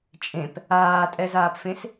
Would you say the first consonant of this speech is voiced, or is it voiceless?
voiceless